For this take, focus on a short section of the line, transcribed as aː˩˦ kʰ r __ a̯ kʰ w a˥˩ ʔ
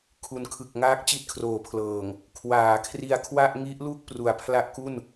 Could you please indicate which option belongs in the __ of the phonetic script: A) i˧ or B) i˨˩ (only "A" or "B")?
A